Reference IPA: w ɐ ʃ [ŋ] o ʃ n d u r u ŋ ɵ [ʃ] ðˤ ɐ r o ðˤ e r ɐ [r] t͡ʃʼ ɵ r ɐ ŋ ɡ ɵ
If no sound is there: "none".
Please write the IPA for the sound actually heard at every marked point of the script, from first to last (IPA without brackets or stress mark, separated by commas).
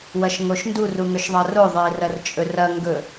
ŋ, ʃ, r